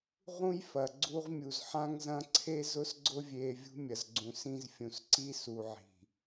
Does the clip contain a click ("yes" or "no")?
yes